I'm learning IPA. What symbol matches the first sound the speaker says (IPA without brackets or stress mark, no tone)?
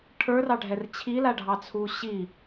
ʈʰ